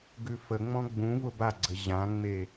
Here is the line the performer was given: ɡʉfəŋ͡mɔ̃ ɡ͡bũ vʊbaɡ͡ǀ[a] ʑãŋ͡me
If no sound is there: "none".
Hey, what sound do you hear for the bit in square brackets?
ə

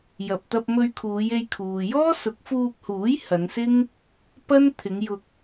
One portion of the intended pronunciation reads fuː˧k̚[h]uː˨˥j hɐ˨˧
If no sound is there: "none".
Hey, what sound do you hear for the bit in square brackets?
h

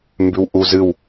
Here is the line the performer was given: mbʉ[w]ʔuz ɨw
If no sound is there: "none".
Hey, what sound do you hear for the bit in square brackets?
w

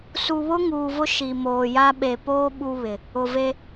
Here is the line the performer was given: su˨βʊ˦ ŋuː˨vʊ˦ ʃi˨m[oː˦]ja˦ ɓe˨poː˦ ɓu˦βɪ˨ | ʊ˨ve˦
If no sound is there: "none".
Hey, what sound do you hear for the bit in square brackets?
oː˨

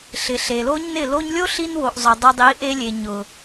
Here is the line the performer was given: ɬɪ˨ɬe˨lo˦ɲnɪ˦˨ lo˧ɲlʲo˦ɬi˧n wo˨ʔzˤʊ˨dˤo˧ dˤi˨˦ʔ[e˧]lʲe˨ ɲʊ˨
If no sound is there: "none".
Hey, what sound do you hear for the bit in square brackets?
e˧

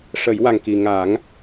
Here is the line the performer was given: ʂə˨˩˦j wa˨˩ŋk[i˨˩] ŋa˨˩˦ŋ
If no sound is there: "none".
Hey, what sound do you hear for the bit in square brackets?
i˨˩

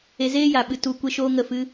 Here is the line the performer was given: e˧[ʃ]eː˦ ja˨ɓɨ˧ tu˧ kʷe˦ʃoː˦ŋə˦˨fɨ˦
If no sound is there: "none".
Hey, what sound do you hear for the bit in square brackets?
z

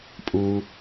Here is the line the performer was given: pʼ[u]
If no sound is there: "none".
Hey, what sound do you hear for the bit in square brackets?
u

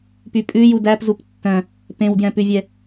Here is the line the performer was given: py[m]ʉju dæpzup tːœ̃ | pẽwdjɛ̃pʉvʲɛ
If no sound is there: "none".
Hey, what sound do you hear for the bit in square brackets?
pʼ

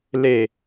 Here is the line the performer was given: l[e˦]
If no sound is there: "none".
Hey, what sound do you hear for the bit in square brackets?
e˨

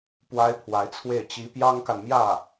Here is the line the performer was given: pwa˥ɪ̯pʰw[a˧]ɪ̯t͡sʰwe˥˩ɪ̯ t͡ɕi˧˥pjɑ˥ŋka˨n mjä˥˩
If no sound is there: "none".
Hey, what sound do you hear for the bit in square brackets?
a˧˥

